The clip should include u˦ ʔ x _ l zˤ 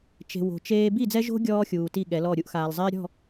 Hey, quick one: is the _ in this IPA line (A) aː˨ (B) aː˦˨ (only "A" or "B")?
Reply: A